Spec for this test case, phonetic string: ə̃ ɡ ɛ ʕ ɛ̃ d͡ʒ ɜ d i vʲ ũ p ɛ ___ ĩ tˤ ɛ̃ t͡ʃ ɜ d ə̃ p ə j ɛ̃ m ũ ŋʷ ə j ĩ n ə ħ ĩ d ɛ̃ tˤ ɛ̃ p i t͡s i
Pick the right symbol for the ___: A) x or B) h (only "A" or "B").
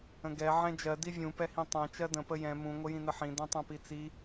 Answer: B